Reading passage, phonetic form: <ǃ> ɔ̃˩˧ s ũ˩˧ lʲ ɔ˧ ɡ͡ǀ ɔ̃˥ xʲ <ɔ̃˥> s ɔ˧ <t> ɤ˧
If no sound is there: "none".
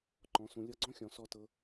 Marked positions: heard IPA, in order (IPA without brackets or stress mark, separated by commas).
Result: ǃ, ɔ̃˩˧, t